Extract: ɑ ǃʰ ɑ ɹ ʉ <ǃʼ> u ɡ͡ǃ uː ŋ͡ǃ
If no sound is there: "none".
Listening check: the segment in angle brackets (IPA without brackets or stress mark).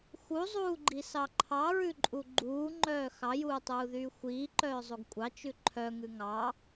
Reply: ǃʼ